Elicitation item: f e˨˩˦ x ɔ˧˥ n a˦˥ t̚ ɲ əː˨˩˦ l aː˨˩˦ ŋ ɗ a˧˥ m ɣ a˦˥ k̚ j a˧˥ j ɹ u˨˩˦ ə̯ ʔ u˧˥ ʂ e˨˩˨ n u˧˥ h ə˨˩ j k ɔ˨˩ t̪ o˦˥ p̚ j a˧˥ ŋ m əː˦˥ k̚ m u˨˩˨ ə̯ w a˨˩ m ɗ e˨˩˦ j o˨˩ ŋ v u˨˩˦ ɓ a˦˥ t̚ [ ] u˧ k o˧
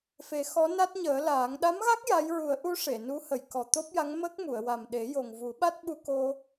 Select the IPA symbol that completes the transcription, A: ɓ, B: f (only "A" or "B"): A